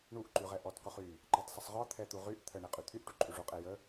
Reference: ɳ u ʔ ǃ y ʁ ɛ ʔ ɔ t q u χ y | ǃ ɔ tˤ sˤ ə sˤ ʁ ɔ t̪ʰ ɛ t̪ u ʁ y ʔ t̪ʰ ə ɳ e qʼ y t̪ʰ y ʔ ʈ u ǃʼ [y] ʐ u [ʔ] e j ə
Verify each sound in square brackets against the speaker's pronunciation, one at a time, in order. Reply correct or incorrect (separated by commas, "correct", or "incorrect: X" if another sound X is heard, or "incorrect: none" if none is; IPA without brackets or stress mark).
correct, incorrect: qʼ